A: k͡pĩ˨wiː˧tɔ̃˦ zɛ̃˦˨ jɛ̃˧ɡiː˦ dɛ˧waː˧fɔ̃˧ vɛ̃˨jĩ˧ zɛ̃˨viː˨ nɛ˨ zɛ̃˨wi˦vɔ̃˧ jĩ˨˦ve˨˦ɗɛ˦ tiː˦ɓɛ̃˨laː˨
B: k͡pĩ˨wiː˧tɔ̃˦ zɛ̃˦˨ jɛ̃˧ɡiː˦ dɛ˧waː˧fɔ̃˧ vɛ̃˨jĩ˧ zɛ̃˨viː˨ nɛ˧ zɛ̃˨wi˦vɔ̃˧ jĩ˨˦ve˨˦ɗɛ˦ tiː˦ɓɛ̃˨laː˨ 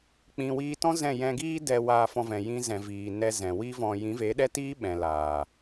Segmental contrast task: B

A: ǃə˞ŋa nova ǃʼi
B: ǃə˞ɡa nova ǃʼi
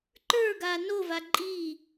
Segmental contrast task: B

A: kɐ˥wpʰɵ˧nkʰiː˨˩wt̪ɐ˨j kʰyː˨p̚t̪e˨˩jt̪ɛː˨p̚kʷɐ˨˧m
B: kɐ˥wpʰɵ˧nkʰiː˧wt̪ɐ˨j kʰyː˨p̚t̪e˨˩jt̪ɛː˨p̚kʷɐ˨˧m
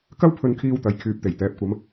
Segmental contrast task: B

